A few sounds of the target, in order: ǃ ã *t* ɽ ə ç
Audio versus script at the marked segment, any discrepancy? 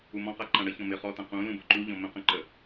yes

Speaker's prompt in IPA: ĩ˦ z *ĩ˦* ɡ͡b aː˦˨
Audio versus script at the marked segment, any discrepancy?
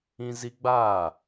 yes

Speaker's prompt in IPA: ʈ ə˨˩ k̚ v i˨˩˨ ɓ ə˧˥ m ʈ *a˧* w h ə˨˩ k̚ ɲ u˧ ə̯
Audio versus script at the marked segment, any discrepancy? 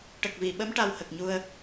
no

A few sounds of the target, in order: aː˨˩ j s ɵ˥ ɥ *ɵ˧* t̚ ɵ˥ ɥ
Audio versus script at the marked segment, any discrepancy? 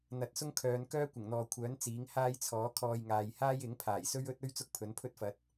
yes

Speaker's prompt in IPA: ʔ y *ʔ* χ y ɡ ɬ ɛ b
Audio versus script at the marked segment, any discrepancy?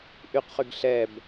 yes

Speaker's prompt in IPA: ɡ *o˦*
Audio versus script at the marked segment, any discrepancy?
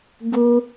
yes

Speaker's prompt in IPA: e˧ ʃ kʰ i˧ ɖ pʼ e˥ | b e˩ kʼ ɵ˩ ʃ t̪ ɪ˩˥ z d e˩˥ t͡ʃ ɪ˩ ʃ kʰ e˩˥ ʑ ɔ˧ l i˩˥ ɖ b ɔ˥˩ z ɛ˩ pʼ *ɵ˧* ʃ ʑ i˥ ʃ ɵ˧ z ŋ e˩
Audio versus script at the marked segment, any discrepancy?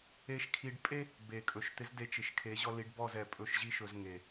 yes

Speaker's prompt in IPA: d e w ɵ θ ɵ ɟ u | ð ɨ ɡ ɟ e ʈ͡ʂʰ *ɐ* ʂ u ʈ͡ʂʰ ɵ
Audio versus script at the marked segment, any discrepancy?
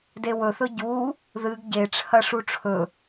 no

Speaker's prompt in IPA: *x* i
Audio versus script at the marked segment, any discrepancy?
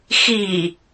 no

